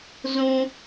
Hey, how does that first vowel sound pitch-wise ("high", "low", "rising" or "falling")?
high